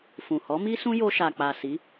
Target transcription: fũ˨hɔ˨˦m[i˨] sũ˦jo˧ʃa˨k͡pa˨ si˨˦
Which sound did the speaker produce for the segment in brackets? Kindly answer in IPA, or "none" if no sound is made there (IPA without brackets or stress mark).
i˦